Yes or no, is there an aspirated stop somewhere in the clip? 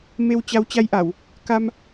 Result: no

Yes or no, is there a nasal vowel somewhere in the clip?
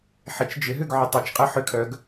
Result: no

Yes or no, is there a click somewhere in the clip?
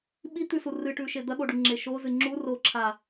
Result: yes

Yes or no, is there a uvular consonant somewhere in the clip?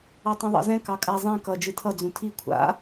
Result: no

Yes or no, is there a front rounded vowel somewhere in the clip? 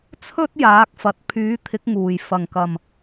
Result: yes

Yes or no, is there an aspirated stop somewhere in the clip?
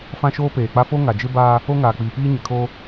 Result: yes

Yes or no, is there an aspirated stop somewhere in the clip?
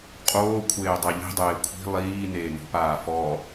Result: yes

